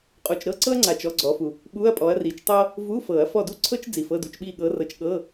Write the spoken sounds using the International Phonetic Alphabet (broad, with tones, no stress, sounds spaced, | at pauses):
qʼ u˨ t͡ʃ ɾ ɤ˥ ǀ ɤ˥ ɐ̯ ŋ͡ǀ a˨ t͡ʃ ɔ˧˥˧ ɡ͡ǀ ɔ˨˦ f u˨ | ɓ u˧˥˧ ɐ̯ pʼ ɔ˨˦ ɐ̯ r i˨˩˦ t͡ʃ tˤ ɤ˥ | v u˧˥˧ f ɤ˨˩˦ ɐ̯ f ɔ˦˨ d u˥ ǀʰ ɤ˥ t͡ʃ d͡z i˨ f ɤ˧˥˧ d u˧˥˧ t͡ʃ ɓ i˦˨ ɠ ɤ˨˦ r ɤ˨˦ t͡ʃ ɠ ɤ˧˥˧